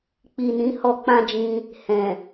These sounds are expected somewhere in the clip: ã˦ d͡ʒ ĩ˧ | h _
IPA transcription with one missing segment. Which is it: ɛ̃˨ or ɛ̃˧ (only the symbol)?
ɛ̃˨